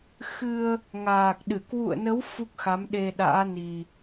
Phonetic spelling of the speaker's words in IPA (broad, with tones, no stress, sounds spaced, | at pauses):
x ɨ˧ ə̯ | ŋ aː˨˩ k̚ ɗ ɨ˧˩ k w ṵ˧˨ ə̯ n ə˨˦ w f u˦˥ k̚ x a˨˦ m ɗ e˧ ɗ a̰ː˧˥ n i˨˩